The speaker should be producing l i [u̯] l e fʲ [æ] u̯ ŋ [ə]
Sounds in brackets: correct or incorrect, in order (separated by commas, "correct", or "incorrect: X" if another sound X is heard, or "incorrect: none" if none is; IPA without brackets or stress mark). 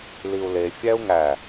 correct, correct, incorrect: æ